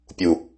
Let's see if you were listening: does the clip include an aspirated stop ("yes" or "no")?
no